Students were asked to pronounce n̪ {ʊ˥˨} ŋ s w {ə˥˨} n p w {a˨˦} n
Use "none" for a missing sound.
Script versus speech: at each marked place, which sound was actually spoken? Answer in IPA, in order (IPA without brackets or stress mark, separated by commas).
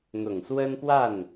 ʊ˨˩, ə˦, a˥˨